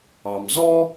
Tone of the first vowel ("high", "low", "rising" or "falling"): low